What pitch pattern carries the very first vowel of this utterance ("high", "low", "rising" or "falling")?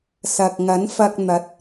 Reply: low